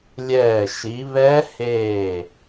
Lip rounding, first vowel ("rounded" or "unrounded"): unrounded